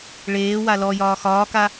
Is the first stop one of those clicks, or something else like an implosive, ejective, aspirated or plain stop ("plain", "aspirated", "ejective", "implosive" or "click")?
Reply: plain